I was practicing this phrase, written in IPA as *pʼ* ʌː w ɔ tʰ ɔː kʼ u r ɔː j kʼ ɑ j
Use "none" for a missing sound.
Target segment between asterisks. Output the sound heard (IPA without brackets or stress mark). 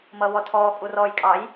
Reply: m